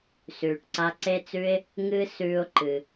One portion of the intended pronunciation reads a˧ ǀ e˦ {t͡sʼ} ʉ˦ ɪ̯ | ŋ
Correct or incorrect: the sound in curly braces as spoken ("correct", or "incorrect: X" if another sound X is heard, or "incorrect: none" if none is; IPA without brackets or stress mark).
incorrect: t͡s